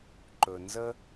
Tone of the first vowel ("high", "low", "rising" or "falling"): low